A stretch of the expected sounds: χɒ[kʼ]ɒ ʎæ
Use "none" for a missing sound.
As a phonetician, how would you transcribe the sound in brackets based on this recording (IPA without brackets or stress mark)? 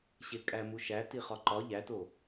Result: ǃ